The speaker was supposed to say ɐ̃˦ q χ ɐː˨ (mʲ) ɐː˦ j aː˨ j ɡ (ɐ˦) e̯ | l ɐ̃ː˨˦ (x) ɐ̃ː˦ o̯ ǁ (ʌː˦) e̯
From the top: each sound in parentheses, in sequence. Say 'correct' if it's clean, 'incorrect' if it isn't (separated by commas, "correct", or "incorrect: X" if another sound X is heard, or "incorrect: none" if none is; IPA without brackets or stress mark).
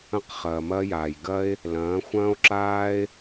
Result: incorrect: m, correct, incorrect: xʷ, incorrect: aː˦